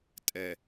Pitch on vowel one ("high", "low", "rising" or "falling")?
low